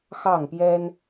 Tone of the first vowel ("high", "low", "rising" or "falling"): falling